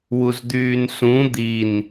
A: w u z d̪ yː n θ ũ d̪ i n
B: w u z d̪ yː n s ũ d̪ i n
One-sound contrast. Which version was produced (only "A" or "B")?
B